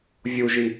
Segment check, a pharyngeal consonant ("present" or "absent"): absent